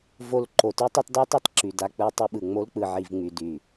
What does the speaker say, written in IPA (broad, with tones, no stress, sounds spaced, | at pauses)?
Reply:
v o˧ l ǃ o˨ t y˦ tˤ ɯ˧ tˤ d a˦ tˤ i˧ tˤ ǁ y˨ d a˧ k͡p ɯ˧ tˤ ɯ˧ ɓ ɯ˨ ŋ͡m o˧ l k͡p ɯ˨ ʕ i˨ v ŋ͡m y˨ d y˨